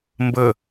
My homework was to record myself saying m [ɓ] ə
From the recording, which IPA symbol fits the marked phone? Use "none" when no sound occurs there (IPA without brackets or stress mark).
b